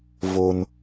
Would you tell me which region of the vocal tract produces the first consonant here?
lips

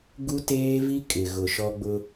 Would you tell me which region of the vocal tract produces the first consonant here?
velum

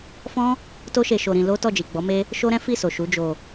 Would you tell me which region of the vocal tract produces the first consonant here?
lips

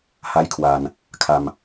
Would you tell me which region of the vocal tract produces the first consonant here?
throat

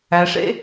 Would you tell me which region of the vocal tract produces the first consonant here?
retroflex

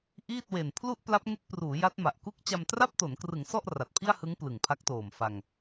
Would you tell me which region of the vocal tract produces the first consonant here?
throat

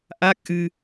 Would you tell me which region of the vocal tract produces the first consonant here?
throat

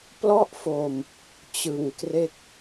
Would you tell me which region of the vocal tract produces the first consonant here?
lips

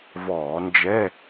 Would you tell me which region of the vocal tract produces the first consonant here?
lips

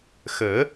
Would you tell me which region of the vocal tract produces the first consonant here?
velum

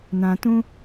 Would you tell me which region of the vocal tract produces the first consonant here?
tongue tip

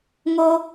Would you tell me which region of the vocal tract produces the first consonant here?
velum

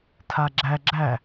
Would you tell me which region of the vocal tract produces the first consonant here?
tongue tip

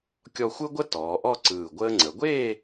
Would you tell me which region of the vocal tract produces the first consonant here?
velum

